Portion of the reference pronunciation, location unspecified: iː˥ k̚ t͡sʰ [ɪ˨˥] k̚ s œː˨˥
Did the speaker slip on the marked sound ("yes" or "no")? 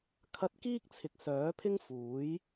yes